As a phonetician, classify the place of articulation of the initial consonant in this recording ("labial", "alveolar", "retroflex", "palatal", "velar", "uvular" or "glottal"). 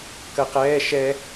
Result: velar